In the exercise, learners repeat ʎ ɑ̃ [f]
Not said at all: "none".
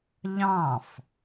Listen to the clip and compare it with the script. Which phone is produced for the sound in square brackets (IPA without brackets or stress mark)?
f